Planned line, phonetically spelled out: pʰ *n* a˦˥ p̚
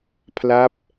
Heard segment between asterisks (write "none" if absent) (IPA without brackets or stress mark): l